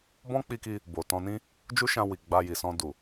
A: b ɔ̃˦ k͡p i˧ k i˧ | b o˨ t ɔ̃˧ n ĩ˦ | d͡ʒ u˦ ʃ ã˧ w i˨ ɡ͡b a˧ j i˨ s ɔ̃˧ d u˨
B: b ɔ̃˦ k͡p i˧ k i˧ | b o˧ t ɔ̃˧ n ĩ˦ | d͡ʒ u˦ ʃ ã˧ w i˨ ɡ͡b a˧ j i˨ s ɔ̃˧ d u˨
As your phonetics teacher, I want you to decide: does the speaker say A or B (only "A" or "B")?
A